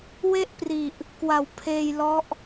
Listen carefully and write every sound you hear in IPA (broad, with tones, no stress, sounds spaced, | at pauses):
w e˥˩ ʔ p r i˨˩ ʔ | k w a˨˩ w pʰ eː˧ j l ɔ˦˥ ʔ